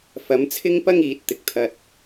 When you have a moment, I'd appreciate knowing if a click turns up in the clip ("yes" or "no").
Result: no